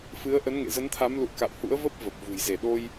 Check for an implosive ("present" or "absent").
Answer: present